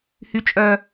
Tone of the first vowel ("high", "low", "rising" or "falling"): low